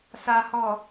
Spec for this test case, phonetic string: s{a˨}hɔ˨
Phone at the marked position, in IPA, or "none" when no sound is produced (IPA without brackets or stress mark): a˨